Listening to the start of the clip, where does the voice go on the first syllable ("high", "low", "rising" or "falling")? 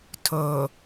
low